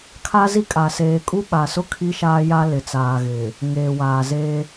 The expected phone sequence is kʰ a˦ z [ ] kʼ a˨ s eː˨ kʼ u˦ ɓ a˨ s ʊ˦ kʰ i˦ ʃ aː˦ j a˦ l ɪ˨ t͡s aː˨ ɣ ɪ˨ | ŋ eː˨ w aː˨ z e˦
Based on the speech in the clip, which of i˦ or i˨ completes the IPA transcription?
i˦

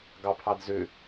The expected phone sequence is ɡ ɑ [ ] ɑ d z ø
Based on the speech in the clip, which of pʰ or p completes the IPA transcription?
pʰ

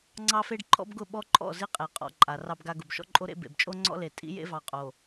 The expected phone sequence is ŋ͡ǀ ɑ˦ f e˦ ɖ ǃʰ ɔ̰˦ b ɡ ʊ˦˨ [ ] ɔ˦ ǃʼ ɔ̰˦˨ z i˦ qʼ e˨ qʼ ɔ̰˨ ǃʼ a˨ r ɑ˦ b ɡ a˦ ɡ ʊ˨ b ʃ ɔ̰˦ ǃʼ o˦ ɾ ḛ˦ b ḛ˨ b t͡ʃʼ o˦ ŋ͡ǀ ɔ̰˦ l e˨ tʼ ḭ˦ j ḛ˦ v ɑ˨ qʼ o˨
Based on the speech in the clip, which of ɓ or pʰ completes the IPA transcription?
ɓ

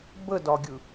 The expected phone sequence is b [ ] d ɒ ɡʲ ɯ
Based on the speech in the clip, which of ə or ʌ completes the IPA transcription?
ə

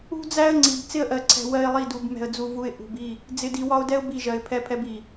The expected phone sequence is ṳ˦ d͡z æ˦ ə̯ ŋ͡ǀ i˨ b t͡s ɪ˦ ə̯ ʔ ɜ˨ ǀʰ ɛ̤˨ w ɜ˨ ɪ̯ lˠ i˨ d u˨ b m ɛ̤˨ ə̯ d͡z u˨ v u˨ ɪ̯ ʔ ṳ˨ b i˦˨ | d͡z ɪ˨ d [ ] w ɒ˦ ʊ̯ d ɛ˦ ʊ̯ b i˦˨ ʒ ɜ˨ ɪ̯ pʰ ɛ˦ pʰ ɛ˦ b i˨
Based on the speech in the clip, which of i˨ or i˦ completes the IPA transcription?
i˨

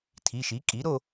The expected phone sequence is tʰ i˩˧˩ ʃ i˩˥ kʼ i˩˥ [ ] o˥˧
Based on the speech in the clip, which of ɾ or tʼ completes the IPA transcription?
ɾ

